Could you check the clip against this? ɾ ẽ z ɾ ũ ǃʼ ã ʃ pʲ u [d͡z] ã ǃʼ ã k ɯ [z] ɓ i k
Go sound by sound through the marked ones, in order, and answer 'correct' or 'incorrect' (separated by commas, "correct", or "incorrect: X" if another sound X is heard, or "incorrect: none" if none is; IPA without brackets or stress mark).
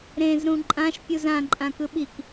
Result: incorrect: z, incorrect: none